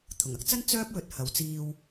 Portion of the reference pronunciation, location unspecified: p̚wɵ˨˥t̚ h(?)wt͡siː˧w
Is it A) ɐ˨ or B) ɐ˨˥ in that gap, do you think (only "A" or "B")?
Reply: A